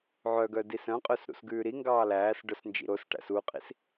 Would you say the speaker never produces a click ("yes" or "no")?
yes